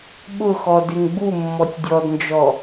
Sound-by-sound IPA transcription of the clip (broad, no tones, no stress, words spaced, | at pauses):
ɓʊxɔ dɪŋɡ͡bumːɔtʲ dʲɔdnd͡ʒɔ